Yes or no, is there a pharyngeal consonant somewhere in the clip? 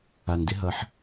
yes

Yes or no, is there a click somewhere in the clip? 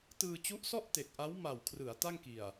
no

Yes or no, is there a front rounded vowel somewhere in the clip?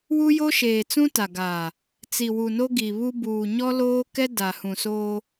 no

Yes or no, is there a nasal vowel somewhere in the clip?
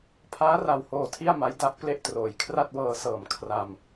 no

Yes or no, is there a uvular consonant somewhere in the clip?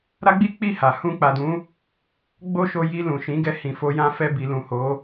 no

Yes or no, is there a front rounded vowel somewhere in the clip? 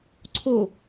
no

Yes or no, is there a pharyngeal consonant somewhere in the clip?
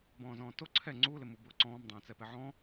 yes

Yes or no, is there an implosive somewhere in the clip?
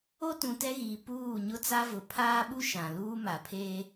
yes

